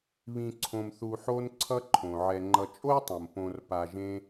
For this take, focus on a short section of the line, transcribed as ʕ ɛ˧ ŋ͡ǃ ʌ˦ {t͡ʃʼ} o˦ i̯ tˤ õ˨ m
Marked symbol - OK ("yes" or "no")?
yes